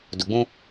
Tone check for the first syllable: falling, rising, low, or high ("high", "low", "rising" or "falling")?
low